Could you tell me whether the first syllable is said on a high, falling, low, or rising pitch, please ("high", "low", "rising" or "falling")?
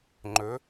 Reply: rising